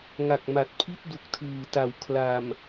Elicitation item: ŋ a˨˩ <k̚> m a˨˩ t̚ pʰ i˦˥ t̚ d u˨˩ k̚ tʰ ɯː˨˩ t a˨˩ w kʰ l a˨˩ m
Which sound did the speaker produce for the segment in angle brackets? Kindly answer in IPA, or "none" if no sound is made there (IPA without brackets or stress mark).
k̚